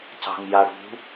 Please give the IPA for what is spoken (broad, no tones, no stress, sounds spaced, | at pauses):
c ɑ̤ ŋ j a ɽ ṳ